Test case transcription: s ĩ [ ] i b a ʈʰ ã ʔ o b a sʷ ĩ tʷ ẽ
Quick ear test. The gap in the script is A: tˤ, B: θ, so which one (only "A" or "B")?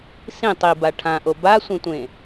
A